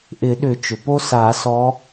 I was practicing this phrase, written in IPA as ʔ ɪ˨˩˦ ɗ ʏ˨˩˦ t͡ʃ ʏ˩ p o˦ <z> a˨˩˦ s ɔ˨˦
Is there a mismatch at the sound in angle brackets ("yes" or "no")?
yes